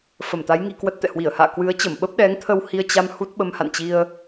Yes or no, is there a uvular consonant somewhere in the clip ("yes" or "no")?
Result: no